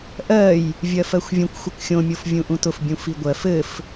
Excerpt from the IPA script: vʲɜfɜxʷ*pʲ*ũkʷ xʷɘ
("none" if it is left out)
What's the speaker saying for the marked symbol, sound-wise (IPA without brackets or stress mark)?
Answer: vʲ